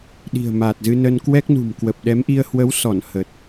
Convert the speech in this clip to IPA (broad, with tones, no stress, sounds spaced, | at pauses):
ɗ i̤˨˩ ə̯ m a˨˩ t̚ z ɨ˧ n ə˧ n k w ɛ˦˥ k̚ n ṳ˨˩ m k w ə˨˩ p̚ ɗ ɛ˨˦ m ʔ i˧ ə̯ h w ə˨˦ w s ɔ˧˩ n h ə˨˩ t̚